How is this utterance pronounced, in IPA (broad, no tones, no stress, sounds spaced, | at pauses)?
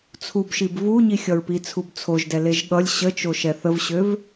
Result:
t͡sʰ u b ʃ i b v u ɲ i xʲ ʌ ɹ p i t͡sʰ u b t͡sʰ o ʒ d ɛ l e ʒ ɠ ʌ lʲ ɕ ə t͡ʃ o ʃ ɛ θ ə v ɕ ø v